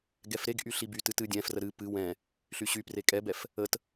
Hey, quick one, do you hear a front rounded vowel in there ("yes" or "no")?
yes